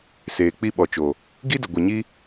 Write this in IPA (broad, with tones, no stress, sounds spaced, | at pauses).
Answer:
s eː˨ k͡p i˧ ɓ ɔ˨ t͡ʃ o˨ | ɡ i˦ d ə˨ ɡʷ e˨ ɲ i˦